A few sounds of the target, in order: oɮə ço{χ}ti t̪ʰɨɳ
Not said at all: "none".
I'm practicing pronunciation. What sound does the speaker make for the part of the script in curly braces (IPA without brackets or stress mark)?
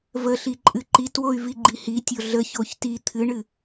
ç